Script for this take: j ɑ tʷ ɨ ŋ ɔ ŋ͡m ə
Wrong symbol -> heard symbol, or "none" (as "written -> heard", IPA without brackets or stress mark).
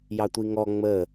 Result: ɨ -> i